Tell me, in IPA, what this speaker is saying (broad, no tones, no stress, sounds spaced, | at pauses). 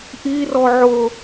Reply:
ʔ i r ɔ ʕ ʊ